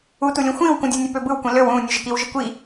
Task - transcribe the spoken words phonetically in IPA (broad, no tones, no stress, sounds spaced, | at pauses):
u t u lʲ ũ xʷ ĩː w k ũ dʲ u nʲ ø p ø b ɯ w kʷ ĩ l ø w ũː nʲ ø ʒ ə k i w ʒ ə kʷ i